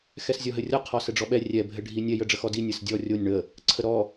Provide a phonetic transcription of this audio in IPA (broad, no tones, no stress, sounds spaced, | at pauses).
x ɛ s zʲ ɔ ɦ ɘ rʲ ɔ qʰ ɔ s ɘ ɖ͡ʐ ɔ ɓ ɛ rʲ ɛ bʱ ɘ ɖʱ i nʲ ɛ j ə ɖ͡ʐ ə x ɔ d i nʲ ɘ s dʲ ɔ rʲ o nʲ ɳ ə | ǀʰ ə ɾ ɔ